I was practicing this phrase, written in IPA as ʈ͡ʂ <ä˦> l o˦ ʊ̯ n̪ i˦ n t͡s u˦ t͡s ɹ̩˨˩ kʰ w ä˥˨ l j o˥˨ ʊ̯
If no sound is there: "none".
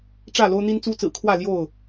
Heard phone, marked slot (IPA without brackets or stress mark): ä˥˨